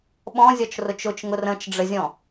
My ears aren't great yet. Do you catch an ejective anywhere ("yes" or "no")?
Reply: no